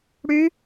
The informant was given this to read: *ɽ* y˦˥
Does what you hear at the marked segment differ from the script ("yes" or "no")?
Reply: no